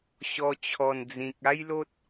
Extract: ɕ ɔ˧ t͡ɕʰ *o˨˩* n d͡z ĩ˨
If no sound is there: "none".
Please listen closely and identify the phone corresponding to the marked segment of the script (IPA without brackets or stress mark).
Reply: ɔ˨˩